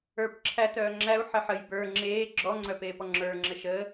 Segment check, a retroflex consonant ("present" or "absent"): absent